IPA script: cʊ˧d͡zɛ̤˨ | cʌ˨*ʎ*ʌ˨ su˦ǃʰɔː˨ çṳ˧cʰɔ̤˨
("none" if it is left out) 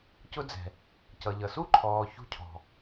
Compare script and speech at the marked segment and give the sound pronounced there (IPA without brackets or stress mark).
ʎ